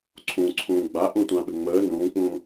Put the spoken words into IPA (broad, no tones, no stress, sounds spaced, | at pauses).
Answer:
ǀʰ ũ ǀʰ ũː ɡ͡b a ʔ ũ tʷ ã ɓ ɘ ŋ͡m əː n ũː k͡p ũː